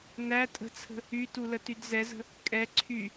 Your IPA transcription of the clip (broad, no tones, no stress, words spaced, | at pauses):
næ tʼə̤t͡sʰə̤ | ytulətyd zɛzə̤ | kʼɛ ǀʰy